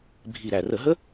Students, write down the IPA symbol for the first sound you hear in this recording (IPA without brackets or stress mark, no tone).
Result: bʱ